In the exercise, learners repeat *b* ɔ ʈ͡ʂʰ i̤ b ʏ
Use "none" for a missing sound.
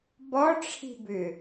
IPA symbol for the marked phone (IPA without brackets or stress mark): b